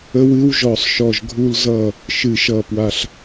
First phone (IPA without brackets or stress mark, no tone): ə